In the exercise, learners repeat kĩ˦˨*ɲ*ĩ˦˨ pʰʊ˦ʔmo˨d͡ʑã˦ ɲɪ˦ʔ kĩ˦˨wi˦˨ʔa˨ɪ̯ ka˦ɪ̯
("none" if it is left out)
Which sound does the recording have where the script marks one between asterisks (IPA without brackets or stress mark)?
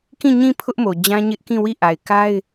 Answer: ɲ